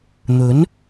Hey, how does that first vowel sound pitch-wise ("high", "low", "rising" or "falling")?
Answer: rising